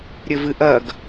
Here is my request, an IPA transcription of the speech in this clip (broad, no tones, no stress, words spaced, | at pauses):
ɾʲɘvɨʔɐɡ